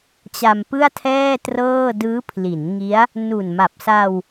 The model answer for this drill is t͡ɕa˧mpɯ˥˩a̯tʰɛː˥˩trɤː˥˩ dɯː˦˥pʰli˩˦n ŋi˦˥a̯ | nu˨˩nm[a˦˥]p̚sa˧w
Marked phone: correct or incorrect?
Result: incorrect